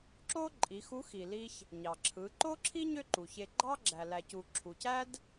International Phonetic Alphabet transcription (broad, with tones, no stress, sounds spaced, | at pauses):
ǁ o˥ ǃʼ i˩˧ x u˧˥ x i˩ l i˧ ç | ɲ ɑ˩ ǁʰ ɯ˩˧ ǃ o˥ ǁʰ i˥ ɲ ø˥ ǃ u˩ ç e˧ ɡ͡ǃ ɑ˥ ɡ͡ǁ æ˩ l æ˩ c u˩ ǁʰ u˩ c æ˥ d